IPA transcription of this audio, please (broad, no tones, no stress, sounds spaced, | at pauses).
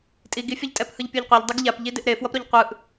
tʼ i ɡ i fʲ ʌ ʎ tʼ ɛ p h ɯ ʎ pʲ o ʎ qʷ ɛ ʎ dˤ ɯ ɡ ʎ a p ʎ i d e ʔ ɾ e f w ʌ p ɾ o ʎ qʷ ɯ ʔ